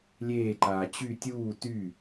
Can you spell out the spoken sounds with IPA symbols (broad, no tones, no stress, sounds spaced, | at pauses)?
lʲ eː ǃ aː t͡ɕ y tʲ uː t y